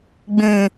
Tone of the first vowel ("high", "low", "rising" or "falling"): low